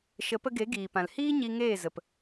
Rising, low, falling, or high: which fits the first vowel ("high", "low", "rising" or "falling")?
rising